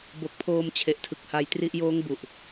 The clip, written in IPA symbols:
b o˨˩ k̚ pʰ oː˧ m t͡ɕʰ e˨˩ ʔ tʰ ɯ˨˩ k̚ h a˧ j t r i˦˥ ʔ j oː˦˥ ŋ b u˨˩ ʔ

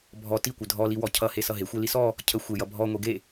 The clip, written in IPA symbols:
bʱ ɔ t i kʷ ə dʱ ɔ l i w ɔ cʰ ʌ h e s ʌ ɦ e xʷ e l i s ɔ | cʰ ə xʷ e j ʌ bʱ ɔ ŋʷ e ɡ e

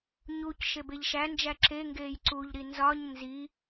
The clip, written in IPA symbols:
ɲ u c ʃ e b e ʎ ʃ æ n d͡ʒ æ ǁ e ŋ ɡ eː j ǀ u ʎ ɾ i n z ɒ ɲ n z i

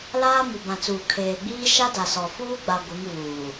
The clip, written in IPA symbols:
l aː˦ m u˨ b ã˨ t͡s uː˨ kʰ eː˨ ɡ͡b iː˦ ʃ a˦ d a˨ s ɔ˨ f uː˦ ɡ͡b a˨ ɡʷ ɪ˨˦ ŋ v uː˨

